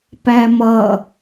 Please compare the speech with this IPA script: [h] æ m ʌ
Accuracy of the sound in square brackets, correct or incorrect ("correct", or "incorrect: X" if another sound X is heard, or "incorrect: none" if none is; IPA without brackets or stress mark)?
incorrect: p